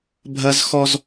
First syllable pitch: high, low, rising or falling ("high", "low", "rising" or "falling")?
high